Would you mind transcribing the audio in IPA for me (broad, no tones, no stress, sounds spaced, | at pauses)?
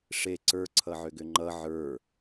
ʂ e ǀ ə˞ ǀʰ ʌ ʕ ʏ ɡ ʏ ŋ͡ǃ ʌ ʕ ə˞